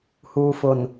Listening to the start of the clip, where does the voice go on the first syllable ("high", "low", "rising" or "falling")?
low